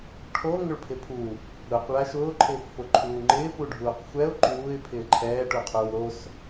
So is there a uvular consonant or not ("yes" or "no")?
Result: yes